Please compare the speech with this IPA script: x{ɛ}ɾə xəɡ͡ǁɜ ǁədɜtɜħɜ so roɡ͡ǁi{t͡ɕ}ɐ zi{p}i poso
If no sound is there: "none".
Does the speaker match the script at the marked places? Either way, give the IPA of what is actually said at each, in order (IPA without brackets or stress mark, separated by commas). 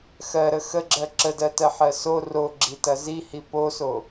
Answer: ɜ, t, h